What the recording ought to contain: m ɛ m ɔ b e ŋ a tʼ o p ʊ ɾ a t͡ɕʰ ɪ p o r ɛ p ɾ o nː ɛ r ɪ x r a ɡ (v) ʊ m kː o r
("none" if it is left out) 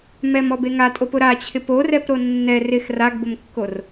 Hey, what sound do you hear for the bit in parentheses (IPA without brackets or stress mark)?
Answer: b